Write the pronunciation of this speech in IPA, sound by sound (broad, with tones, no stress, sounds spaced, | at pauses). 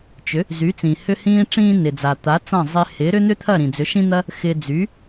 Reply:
t͡ʃ ʏ˩˥ | z y˩˥ t͡s ĩ˩ h ʏ˧ h ĩː˧ ʈ͡ʂ ĩː˧ n ɪ˩ d͡z a˩ t̪ a˩˥ t͡s ã˥˩ zˤ ɪ˧ h ɪː˩˥ ɾ ʏ˥ n̪ ʏ˥ t̪ʰ ɐ˥˩ ɾ ĩ˩ d͡z ʏ˩˥ ʃ ĩ˥ n̪ ɐ˥ | x ɪː˧ d͡z y˩˥